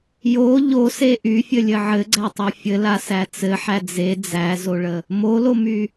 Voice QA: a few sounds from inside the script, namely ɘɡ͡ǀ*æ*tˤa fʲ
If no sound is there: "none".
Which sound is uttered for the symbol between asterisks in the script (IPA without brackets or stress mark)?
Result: æ